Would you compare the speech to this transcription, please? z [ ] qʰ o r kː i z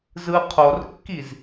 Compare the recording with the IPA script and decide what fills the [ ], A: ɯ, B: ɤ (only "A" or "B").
A